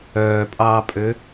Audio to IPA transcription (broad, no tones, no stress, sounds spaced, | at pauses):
œː pʼ ɑː pʼ ø